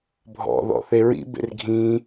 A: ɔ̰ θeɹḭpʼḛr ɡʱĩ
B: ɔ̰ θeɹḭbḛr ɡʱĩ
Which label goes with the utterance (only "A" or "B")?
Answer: B